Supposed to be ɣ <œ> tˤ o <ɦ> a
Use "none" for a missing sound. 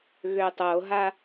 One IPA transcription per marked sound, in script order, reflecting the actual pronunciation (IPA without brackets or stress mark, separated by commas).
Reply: ø, ɦ